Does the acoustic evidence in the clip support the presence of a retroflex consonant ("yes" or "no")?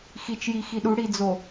yes